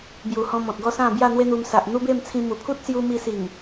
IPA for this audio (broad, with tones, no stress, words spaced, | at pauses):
bju˨˩hɔ̃˧ mɔ̃˨t̚ɡɔ˥˧sã˥˧ bja˥˧n̪we˦n̪u˧m sa˨ʔn̪u˦be˥˧mt͡sʰĩ˧ mu˨˩pʰu˦t̚sju˧ mi˧si˨˩ŋ